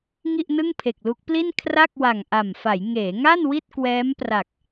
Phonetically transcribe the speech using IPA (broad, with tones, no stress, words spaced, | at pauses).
ŋi˥˩ʔnɯ˥˩ŋpʰe˨˩k̚lu˦˥k̚ pli˥˩nkʰra˥˩k̚wa˨˩ŋ ʔa˨˩mfa˩˦j ŋeː˩˦ŋa˥˩n wi˥˩t̚kwɛː˦˥mpra˨˩k̚